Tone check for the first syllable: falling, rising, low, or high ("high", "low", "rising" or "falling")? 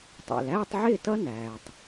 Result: low